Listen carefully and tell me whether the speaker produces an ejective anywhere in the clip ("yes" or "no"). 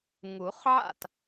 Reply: no